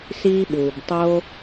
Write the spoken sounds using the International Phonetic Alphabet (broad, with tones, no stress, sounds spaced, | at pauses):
s iː˥ ɓ uː˩ b tˤ oː˥